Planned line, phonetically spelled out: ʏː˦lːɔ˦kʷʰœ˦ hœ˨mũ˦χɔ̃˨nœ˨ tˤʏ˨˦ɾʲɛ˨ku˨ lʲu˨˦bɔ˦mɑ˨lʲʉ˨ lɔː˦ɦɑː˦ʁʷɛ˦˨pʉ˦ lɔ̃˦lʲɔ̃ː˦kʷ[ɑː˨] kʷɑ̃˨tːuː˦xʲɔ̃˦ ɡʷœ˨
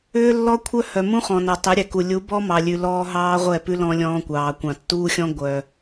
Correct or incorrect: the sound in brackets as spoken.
correct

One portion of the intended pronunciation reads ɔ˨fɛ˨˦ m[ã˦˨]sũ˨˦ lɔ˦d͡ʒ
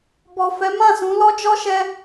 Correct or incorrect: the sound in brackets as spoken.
correct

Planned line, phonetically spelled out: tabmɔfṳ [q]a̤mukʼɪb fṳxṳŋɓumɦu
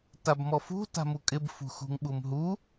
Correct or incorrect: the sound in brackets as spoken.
incorrect: t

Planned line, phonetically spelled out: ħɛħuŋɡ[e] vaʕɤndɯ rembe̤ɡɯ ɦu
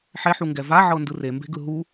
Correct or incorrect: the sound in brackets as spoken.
incorrect: ɛ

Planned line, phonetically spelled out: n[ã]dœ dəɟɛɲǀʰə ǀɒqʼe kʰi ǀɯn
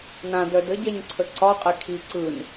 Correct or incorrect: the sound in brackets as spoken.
correct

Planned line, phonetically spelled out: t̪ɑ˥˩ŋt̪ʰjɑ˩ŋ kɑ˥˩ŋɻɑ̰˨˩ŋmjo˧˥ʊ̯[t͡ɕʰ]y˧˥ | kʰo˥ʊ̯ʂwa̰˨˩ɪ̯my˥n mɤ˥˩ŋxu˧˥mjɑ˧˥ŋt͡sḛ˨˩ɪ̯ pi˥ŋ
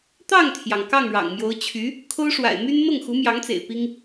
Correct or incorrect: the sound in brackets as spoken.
correct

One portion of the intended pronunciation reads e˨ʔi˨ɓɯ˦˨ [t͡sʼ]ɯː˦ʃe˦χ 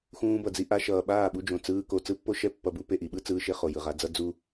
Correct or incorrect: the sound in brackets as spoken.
incorrect: t͡s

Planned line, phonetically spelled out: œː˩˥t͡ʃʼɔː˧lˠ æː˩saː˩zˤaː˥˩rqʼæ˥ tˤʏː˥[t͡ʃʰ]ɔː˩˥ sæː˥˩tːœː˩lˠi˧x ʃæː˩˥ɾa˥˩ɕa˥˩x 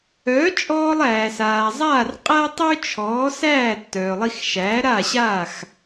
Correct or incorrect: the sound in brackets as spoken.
correct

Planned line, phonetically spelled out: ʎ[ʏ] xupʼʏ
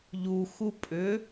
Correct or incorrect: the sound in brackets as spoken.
incorrect: u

